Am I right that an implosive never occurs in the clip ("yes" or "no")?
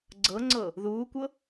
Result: yes